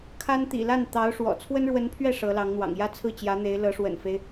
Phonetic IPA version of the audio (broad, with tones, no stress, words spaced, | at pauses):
kʰa˥n t̪ḭ˨˩la˥˩nt̪ɑ˧˥ʊ̯ ʂwɔ̰˨˩ t͡sʰwə˥nɻwə˧˥npʰɥɛ˥˩ ʂɤ˧˥lɑ˧˥ŋn̪wɑ̰˨˩ŋ jä˥˧t͡sʰɹ̩˥˩t͡ɕjä˧˥ n̪e˧˥ɪ̯lɤ˧˥ʂwə̰˨˩nfe˦ɪ̯